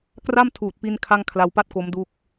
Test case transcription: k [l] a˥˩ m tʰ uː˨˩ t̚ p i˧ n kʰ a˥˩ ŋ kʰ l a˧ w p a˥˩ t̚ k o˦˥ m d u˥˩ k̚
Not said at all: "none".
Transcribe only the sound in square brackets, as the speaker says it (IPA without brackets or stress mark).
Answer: r